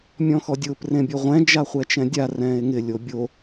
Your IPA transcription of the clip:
mʲ ɔ̃ x ɔ dʲ ʊː p r ẽ bʲ o ʁʷ ɛ̃ d͡ʒ a χʷ ɛ t͡ʃ ɛ̃ dʲ a r ɛ̃ː e̯ ŋ ɪ lʲ o bʲ o

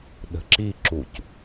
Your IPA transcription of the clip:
ɗ ə̤ ǁ i ǁ u c

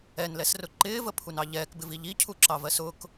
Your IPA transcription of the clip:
ɛ n l ɛ s r ʊ ǃ ɪː v ə pʰ u n ɑ ʎ ɛː k b ɪ v i ʎ i cʰ u ǁ ɑ v ɜ s ʊ k

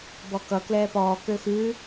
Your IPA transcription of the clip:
b ɔ k ʌ k l ɛː p ɔː k ø x ʉː

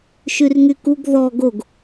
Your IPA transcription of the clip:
ʃ y r ŋ y k u ɡ ð ɔ ɡ o ɡ

